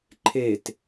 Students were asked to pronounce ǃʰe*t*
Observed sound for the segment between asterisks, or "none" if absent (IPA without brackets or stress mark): t